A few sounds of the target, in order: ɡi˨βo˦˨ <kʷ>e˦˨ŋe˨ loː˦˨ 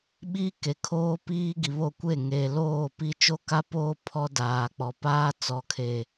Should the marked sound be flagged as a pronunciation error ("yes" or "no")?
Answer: no